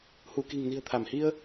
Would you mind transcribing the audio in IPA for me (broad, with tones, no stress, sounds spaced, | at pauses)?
h u˧˩ k i̤˨˩ ŋ n i̤˨˩ ə̯ t̪ʰ a˧˩ m h i˧ ə̯